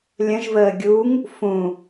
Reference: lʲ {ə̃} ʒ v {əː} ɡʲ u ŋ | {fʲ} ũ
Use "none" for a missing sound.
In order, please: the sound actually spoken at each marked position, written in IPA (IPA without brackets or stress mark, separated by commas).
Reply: ə̃, əː, f